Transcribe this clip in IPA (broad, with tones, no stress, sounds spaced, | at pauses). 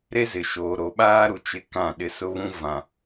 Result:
ɾ e˦ z ɪ˨ ʃ oː˨ ɾ o˨ ɓ aː˦ ɾ u˨ t͡ʃ ɪ˦ k ã˦˨ ɗ ɪ˦ s ʊ˦ β ũ˦ v ã˨